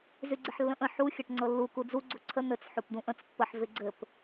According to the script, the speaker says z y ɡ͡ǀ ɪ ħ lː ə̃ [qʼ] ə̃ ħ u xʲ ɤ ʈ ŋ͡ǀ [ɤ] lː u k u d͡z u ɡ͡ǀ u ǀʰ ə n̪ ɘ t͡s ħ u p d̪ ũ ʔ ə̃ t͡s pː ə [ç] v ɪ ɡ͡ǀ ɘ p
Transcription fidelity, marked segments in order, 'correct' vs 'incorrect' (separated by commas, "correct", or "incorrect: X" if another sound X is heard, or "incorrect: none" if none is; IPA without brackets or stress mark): incorrect: ʔ, correct, incorrect: ħ